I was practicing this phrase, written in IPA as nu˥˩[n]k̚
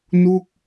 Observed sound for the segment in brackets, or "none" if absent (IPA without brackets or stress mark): none